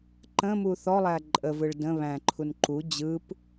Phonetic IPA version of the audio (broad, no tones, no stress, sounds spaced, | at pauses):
ǃ ə̃ m u θ ɔ lˠ æ ǃʼ ə v ɯ ɭ d ə̃ β æ̃ ǃʰ u n ǃ u d͡ʑ ɯ p